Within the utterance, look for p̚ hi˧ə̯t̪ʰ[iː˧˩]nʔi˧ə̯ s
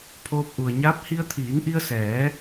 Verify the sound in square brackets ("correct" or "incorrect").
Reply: incorrect